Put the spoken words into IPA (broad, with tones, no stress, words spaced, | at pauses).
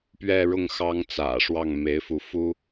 pɥɛ˥˧ɻʊ˥˩ŋ xɑ˥ŋt͡sä̰˨˩ʂwɑ˥˩ŋ me˧˥ɪ̯fu˧˥ fu˥